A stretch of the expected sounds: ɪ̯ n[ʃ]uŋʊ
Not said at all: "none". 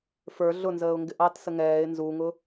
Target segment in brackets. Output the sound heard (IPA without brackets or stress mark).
z